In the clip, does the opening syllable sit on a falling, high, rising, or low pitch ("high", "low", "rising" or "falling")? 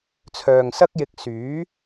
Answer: low